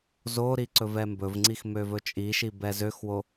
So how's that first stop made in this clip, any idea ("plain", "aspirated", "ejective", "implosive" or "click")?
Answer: click